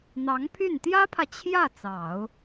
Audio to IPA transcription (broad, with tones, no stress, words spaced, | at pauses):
n̪ɑ˧˥ŋpʰy˥˩n t̪jä˥pʰä˨ t͡ɕʰjä˥˩ t͡sɑ˨˩˦ʊ̯